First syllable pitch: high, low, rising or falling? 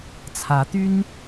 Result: rising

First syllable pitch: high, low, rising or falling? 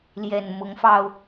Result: low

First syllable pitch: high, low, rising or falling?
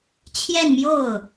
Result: falling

